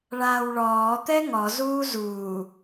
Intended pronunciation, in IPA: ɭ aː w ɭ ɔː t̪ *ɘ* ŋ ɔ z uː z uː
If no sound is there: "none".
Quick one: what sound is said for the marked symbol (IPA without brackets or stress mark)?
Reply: ɛ